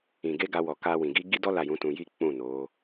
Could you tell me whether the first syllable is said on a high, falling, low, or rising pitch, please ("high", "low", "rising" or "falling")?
low